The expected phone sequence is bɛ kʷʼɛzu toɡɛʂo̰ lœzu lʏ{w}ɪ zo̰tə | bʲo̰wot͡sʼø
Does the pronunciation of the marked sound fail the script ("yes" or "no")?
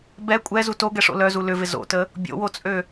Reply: yes